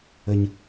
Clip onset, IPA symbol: ə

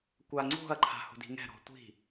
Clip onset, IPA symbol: kʷ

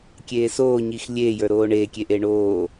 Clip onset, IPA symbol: kʲ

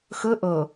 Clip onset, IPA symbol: x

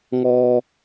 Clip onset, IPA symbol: ŋ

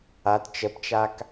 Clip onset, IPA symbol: a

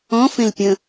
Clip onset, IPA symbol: ɔ̃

